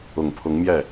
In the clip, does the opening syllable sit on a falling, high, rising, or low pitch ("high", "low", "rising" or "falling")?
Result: low